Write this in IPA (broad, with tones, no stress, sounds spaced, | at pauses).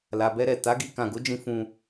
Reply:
l a˨ b ɛ˧ ɾ ɛ˨ t a˨˦ ɡ i˧ k ã˨ ɡ o˨˦ d͡ʒ ĩ˧ f ũ˧